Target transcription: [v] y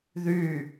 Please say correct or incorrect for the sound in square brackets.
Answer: incorrect: ð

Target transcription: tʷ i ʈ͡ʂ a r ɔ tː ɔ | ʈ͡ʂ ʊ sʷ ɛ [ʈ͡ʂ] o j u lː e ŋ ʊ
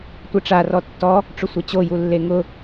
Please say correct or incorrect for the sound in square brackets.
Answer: incorrect: t͡ɕ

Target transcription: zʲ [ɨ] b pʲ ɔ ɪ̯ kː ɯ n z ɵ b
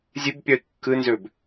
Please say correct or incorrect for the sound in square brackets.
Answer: correct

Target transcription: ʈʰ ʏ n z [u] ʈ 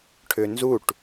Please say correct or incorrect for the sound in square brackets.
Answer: correct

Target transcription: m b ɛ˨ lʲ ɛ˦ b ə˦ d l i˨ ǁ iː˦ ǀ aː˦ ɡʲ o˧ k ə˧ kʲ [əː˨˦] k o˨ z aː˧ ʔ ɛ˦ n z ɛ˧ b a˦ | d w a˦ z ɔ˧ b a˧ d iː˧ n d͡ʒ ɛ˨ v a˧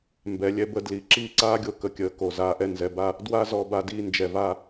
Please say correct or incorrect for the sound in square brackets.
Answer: correct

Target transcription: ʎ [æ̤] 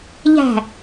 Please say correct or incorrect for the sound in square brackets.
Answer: correct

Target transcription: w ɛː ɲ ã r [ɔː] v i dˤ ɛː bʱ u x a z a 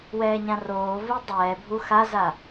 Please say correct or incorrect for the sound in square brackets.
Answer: incorrect: oː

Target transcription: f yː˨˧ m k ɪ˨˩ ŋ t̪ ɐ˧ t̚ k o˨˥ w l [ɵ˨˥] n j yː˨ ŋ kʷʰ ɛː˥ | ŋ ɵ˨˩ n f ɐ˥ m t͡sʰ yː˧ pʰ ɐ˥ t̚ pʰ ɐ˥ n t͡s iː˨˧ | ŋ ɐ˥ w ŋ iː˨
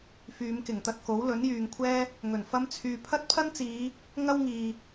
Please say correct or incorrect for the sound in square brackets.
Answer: correct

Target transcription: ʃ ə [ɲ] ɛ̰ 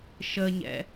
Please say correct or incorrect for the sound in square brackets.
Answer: correct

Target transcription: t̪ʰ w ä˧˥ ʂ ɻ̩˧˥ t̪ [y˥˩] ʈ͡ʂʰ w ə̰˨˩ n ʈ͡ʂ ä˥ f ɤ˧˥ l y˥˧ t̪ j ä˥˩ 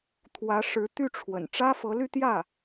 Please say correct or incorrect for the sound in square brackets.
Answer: correct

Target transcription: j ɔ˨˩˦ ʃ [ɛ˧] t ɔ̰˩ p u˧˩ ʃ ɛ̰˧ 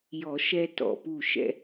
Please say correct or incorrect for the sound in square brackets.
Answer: correct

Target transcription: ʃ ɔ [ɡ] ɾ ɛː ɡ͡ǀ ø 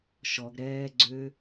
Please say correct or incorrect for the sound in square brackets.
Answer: correct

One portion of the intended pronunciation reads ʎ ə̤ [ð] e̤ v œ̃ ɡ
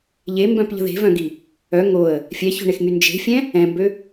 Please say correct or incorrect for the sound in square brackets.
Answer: correct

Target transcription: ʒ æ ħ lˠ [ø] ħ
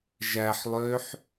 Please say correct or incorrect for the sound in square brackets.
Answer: correct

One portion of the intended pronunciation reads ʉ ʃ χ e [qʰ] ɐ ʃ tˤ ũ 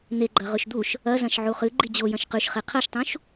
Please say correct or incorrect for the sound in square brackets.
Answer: correct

